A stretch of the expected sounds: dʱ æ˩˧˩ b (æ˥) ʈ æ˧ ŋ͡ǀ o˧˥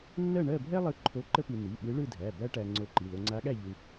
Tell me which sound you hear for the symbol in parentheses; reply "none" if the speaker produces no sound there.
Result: æ˥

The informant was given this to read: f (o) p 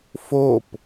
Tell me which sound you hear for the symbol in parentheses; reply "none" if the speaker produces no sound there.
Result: o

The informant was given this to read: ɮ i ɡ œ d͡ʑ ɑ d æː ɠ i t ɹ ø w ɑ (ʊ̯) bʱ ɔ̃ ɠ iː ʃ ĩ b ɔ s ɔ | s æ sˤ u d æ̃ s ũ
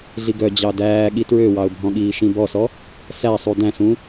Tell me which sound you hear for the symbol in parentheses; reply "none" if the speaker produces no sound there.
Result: ʊ̯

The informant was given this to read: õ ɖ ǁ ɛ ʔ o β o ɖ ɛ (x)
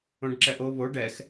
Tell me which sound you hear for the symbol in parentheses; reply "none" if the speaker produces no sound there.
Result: x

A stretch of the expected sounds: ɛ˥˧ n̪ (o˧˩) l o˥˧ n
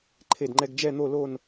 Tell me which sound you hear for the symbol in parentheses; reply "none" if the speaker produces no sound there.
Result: o˥˧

